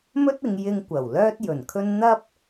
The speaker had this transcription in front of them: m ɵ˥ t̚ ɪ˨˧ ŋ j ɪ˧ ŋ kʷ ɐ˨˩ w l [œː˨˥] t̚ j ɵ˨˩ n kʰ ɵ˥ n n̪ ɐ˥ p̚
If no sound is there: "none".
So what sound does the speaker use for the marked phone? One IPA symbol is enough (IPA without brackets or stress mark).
œː˥